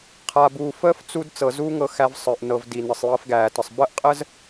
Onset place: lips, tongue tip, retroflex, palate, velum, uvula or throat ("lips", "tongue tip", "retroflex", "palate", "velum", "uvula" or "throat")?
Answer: uvula